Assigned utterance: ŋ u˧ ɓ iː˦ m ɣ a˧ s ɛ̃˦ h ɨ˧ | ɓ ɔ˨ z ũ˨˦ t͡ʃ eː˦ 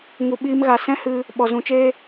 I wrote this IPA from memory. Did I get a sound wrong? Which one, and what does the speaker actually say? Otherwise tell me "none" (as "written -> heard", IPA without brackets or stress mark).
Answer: none